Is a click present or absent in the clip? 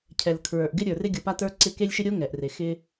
present